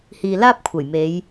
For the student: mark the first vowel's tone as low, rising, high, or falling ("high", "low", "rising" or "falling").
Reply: low